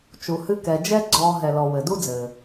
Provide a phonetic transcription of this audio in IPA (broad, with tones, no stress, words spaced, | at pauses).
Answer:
t͡ʃu˨hɨ˦kɛ˨d͡ʒɛ˥ ɡ͡ǀɔː˨ɦɛ˩lɔ˩ wɘ˩du˦ d͡zɘː˩